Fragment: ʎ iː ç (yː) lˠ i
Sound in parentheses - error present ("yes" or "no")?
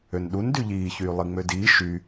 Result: no